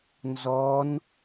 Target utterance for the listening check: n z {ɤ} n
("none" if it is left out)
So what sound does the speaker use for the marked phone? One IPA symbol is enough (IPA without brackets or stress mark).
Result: ɔ